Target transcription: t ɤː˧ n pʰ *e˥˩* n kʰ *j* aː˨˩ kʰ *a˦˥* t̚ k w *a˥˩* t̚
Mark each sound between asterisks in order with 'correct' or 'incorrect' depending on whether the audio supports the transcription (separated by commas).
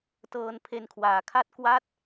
incorrect, incorrect, incorrect, correct